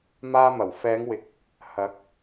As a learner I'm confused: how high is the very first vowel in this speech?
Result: low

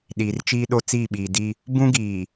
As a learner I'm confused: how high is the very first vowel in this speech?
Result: high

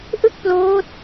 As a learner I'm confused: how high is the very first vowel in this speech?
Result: high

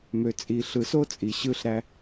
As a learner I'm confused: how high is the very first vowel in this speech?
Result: mid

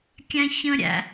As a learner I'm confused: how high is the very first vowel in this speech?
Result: low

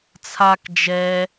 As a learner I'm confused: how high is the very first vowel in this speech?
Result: low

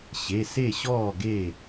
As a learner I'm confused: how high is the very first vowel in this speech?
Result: mid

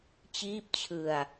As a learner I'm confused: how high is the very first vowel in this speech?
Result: high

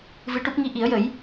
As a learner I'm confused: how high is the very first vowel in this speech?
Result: high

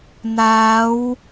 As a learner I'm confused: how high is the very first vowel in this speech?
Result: low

